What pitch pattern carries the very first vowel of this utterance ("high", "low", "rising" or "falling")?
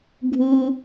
high